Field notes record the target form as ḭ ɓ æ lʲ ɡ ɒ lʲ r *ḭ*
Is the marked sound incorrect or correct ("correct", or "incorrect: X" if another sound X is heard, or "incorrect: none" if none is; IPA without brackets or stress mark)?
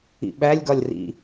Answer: correct